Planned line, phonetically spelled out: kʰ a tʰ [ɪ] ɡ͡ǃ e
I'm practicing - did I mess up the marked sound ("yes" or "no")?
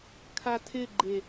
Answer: no